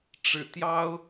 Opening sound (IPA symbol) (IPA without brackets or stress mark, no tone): ʈ͡ʂ